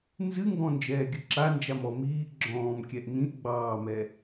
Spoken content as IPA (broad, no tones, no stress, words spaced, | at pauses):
nzɨŋɡɔ̃ nd͡ʒɛːɡʲɨǁand͡ʒam ɔ miːʔ ɡ͡ǁɔ̃ːmkʲɛʔ nĩʔ ɡ͡bɑːmɛ